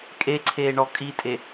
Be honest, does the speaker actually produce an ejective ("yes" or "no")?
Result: yes